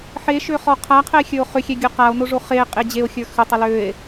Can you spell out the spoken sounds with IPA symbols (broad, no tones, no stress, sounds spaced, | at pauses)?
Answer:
ħ e ʃ ø χ ɔ qʰ a qʰ ɛ e̯ xʲ ə˞ o̯ χ ʏ xʲ ɛ ɡʲ o q a o̯ n o ʐ o χ e qʼ e d͡ʑ e o̯ xʲ ə˞ x ʏ tˤ ɛ l ø e̯